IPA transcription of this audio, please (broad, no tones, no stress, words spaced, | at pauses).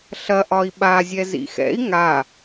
ɬɐʔɒi̯ ɓazʲɛ zḭxɛ̰i̯ ŋa